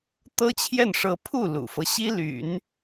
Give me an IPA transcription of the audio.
t̪ ɤ˥ t͡ɕʰ j ɛ˥˩ n ʂ ɤ˥ pʰ u˥˩ l ṵ˨˩ f ɤ˦ ɕ i˥ l y̰˨˩˦ n

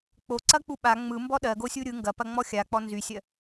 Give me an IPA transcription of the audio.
k͡p o ǀ ɐ k͡p u ɓ a ŋ͡m ɯ m b ɔ ɗ ɜ ɡ o sʲ u ɾʲ ɯ ŋ ɡ ɐ p ɐ ŋ͡m ɔ xʲ a k͡p ɔ n z y sʲ ɜ

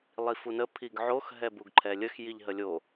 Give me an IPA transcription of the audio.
lˠ i f u n ə pʰ i ɡ ʕ o x ɦ ɛ b u ɡ ǃʰ ɛ lʲ ə x j i ʎ ɦ ə lʲ o

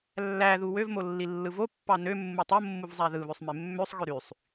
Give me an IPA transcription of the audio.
lː æ ð u w ø v m o lː i lː ɯ v o pː ɑ n ø mː u tˤ o mː u v zˤ æ ð ɯ β ø sˤ m e mː ø sˤ ɣ ø ɾ y sˤ

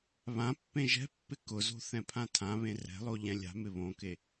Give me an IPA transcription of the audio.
β ã pː ẽ ʒ ɛ̤ pː ɪ k ʊ z o̤ θ ɛ̃ pʰ ã tʰ ã β ẽ r ɛ̤ lˠ o ʎ ɛ̃ lʲ a̤ m ɪ β õ k e

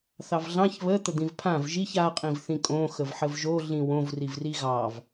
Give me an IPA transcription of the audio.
θ ɑ v ɮ ɑ̃ ç β ə t̪ ə d̪ ĩ v pʰ ã v ʒ i ç a qʼ ĩ v θ ĩ kʼ õ x ə v ħ ə v ʒ o ɮ ĩ w õ v r i v r i ɣ ɑ v

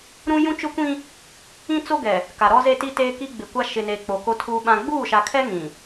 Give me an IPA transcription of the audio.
ɾ ũ˦ j ũ˦ t͡ʃ ʊ˦ kʷ ĩ˦ | ĩ˦ t͡s o˦ ɡ ɛ˨ | k a˨ ɾ ɔ˦ z e˦ t i˦ t eː˦ k i˦ ɡ͡b ɪ˨ kʷ a˦ ʃ ɪ˨ n e˨ k͡p o˨ k o˦ tʰ uː˦ ɓ ã˦ ɡ͡b uː˦˨ ʃ a˨ kʰ ɛ˦ ŋ ĩ˨

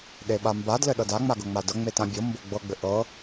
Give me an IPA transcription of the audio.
ɗ e ɓ a m b a d l ɘ ɗ ɤ d a ŋ͡m a ɡ ɤ ŋ͡m a d ɤ ŋ͡m e t ã bʲ ɤ m b o ɡ͡b ɤ ɡ͡b ɘ ʔ ɤ

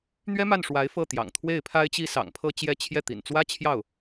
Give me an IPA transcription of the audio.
n̪ ɥ ɛ˥ m a˥˩ n ʂ w a˧˥ ɪ̯ f ɤ˥˩ t̪ j ɑ̰˨˩ ŋ t̪ʰ w e˥˩ ɪ̯ pʰ a˥ ɪ̯ t͡ɕ i˥ s ɑ̰˨˩ ŋ pʰ ɤ˥˧ t͡ɕ j ɛ˥˧ t͡ɕʰ j ɛ˥˩ t̪ ḭ˨˩ n t͡s w ä˥ t͡ɕʰ j ɑ˥˩ ʊ̯

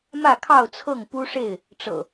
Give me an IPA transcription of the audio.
m ä˥˨ kʰ ɑ˥˨ ʊ̯ t͡sʰ ɤ˥˨ ŋ p u˦ ʂ e˥˨ ɪ̯ | ʈ͡ʂ ɤ̰˨˩

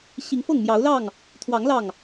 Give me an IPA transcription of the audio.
ɕ i˨˦ ŋ f ɤ˥˨ ŋ m j ɑ˨˦ ʊ̯ l ɑ˥˨ ŋ | t̪ʰ w ɑ˨˦ ŋ l ɑ˥˨ ŋ

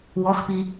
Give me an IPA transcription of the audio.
w ɔ x p i

